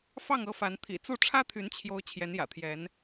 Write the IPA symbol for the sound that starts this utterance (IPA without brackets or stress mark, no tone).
f